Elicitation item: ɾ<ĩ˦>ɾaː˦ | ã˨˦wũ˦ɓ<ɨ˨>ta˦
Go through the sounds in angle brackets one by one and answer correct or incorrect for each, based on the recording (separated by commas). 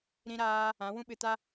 correct, incorrect